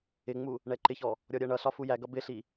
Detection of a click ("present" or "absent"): present